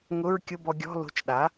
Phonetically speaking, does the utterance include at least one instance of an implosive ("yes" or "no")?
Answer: yes